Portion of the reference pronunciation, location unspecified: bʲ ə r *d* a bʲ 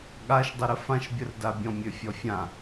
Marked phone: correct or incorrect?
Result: correct